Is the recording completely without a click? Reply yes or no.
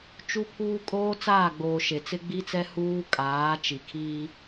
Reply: yes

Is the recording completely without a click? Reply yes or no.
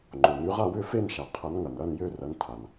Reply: no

